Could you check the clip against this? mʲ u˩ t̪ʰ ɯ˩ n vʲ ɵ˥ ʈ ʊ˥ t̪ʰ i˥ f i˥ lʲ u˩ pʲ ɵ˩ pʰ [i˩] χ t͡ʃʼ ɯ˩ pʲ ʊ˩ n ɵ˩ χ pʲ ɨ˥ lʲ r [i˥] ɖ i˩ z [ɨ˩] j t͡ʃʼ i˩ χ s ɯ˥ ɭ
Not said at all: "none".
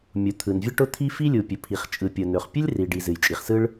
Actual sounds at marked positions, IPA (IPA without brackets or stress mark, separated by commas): i˩, i˩, ɨ˩